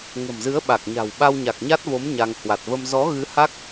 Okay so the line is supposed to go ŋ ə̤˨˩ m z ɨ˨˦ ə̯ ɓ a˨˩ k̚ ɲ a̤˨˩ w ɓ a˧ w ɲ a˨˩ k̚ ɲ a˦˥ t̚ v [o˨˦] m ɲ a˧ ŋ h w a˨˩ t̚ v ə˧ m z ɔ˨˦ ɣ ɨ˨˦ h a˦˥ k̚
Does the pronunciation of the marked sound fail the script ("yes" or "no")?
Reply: no